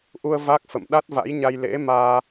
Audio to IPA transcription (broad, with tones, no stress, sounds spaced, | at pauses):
ʔ u˧ ə̯ v a˦˥ k̚ f ə̰˧˨ m ɗ a˦˥ t̚ v a̰˧˥ j ɲ a˧ j l ḛ˧˥ m aː˧